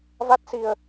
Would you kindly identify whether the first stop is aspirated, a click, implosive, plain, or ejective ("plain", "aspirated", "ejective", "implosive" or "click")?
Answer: plain